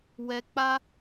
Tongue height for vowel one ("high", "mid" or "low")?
mid